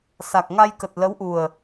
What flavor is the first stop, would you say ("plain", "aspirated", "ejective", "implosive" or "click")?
plain